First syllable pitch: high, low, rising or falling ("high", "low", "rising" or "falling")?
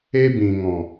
high